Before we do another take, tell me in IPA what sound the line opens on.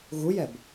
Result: ɣ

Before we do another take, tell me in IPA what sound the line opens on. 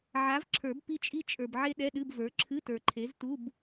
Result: ʕ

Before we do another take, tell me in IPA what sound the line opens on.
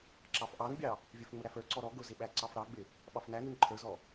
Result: ǁ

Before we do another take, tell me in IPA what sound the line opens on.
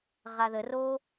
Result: ʁ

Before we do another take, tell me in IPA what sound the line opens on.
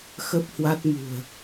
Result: x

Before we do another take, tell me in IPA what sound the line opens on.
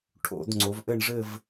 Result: ʈʰ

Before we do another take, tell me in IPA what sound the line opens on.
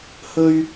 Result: h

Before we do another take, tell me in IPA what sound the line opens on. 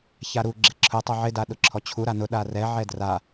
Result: ç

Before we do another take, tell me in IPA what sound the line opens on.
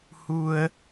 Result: h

